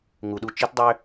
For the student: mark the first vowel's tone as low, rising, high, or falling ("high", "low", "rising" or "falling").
low